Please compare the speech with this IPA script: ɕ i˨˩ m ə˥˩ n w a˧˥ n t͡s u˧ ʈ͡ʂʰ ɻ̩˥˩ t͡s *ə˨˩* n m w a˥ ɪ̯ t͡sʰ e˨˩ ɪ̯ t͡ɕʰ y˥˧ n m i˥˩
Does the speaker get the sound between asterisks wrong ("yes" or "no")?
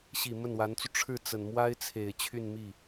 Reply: no